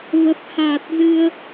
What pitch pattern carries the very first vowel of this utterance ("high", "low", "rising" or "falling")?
low